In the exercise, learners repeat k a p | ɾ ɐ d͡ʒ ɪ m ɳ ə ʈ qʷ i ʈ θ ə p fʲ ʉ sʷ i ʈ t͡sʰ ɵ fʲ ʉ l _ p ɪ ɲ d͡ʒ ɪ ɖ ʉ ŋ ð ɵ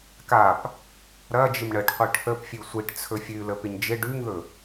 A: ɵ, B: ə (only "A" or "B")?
B